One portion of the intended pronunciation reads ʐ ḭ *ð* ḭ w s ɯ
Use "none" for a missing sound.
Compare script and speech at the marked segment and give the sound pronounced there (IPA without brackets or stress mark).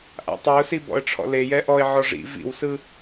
v